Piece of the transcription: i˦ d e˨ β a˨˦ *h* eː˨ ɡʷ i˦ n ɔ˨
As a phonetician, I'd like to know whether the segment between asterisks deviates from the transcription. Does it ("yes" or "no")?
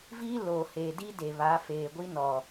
yes